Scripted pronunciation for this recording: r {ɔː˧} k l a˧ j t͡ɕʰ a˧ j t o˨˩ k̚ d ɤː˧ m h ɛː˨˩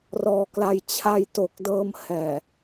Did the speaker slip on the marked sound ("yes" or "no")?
no